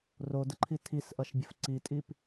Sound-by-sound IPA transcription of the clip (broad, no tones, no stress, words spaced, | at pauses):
rodəǃʰi tʰisʔʌʃbʲəf ǀitʼip